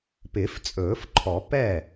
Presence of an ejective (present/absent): present